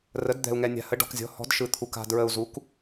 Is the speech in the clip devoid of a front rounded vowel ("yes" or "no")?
yes